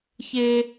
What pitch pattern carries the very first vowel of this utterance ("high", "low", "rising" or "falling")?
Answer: high